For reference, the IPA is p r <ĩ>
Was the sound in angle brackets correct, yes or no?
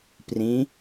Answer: yes